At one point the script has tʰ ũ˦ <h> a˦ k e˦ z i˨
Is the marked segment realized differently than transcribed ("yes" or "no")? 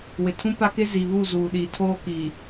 yes